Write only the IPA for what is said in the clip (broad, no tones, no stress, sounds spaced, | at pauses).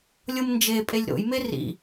lʲ ɤ m n d͡ʒ e pʼ e lʲ ɾ o̰ j m e r ḭ